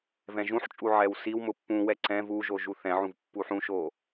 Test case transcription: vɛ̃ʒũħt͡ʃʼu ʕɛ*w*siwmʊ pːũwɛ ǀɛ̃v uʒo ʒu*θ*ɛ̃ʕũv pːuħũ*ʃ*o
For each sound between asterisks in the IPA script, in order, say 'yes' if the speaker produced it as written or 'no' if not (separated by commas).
yes, yes, yes